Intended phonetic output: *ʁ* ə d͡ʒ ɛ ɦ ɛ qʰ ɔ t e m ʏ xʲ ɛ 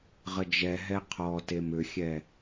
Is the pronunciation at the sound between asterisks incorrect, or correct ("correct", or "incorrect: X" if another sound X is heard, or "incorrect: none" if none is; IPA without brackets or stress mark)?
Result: correct